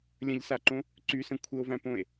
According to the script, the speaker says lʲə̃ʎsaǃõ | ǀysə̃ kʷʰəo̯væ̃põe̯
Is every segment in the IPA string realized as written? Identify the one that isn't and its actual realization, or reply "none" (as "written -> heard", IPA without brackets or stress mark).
none